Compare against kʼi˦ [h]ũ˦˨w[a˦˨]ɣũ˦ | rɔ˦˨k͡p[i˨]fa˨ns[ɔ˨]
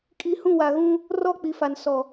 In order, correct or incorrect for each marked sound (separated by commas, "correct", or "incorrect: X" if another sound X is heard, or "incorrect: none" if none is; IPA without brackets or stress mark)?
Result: correct, incorrect: a˨, correct, correct